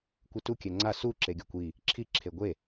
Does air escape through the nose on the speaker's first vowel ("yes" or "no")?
no